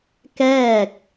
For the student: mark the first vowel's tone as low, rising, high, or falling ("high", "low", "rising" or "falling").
falling